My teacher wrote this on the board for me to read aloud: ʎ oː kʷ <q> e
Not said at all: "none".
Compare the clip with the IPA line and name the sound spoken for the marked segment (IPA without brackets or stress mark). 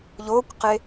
q